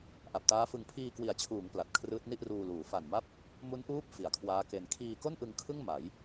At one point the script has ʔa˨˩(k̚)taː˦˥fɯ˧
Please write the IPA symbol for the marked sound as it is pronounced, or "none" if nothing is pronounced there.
p̚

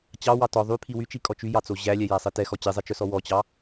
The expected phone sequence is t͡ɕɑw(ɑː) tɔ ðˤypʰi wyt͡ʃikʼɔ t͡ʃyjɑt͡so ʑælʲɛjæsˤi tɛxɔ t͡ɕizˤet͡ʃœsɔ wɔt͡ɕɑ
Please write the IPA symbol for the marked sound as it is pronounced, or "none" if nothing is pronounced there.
ɑ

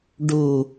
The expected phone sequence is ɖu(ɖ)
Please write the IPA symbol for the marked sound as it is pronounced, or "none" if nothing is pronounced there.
none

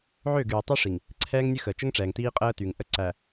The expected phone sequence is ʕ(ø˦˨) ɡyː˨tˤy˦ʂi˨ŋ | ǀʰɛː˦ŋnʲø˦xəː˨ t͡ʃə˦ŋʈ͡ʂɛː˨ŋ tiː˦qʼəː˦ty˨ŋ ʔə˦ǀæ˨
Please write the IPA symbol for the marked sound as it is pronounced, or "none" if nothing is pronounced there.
ø˦˨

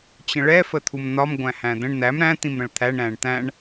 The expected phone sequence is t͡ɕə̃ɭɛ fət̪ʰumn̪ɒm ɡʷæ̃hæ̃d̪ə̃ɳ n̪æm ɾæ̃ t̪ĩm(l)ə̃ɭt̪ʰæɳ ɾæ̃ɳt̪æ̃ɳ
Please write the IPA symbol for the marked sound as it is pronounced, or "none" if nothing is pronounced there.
ɾ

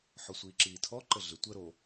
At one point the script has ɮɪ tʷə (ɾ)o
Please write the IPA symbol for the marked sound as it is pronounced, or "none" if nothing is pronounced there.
ɾ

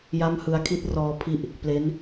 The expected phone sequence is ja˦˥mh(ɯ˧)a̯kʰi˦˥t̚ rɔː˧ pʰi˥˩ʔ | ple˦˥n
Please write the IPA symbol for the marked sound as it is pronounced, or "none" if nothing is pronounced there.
ɯ˧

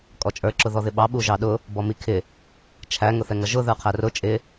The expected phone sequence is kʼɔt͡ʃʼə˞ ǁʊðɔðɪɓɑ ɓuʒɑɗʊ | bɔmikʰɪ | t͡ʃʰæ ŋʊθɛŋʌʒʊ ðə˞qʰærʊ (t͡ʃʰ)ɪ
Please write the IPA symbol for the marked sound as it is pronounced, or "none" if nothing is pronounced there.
t͡ʃʼ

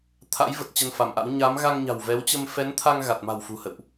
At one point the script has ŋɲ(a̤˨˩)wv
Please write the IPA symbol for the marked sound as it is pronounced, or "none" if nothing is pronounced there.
a̤˨˩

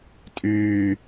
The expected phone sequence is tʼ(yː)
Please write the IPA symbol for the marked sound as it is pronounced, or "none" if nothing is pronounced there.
yː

